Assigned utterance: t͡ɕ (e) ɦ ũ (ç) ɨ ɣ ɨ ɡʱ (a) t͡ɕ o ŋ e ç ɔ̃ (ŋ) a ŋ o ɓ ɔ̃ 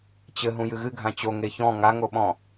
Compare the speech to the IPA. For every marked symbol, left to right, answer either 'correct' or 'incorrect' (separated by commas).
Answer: incorrect, incorrect, incorrect, correct